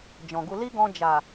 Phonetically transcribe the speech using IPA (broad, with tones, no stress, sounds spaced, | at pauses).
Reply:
d͡ʒ ɔ̃˨ ɡ u˧ l i˦ ɡ ɔ̃˧ d͡ʒ a˨